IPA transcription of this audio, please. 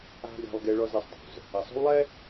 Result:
a̤˦ ɡ a̤˦ lˠ ɡ e˦ ɭ ɔ˦ z e˨ sˤ dˤ o̤˨ z | ɐ˨ sˤ o̤˦ w lˠ ɛ˦

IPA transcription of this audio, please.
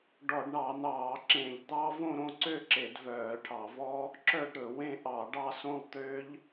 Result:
ɖ ɔ˧˩˧ ɖ ɳ ɑ˧˩˧ n̪ ɑː˧˩˧ ǁ ẽ˧˩˧ ʎ d̪ ɑ˦˥ v õ˥˧ ɾ õ˥˧ ǀ ø˥˧ ǁ e˧˩˧ d v œː˧˩˧ ʈʰ ɑ˧˩˧ v ɔ˦˥ | ǁ œ˥˧ ɖ ɾ ɵ˧˩˧ w ẽ˦˥ ʔ ɑ˧˩˧ ɖ ɑ˥˧ s õ˥˧ lˠ t̪ ø˦˥ ʎ

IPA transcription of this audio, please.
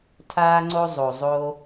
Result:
tʰ aː˥ ŋ͡ǀ o˥ zˤ o˩ zˤ o˧

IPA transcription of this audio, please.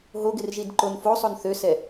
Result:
ɦ o ɡ ɪ r ʒ i d ǃ o n f o sˤ o n θ ø s ɛ

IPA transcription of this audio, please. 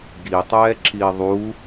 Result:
ɡ i tˤ ɛː ǁ i ðˤ u

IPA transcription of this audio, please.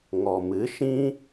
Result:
ŋ ɔ˨ m ɨ˨˦ ʃ ĩ˦

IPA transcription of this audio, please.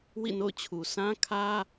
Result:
w ḭ˦˨ n o̰˦˨ ʊ̯ t͡ɕʰ u˨ sʰ ã˦ kʰ ä˦

